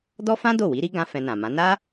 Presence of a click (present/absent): absent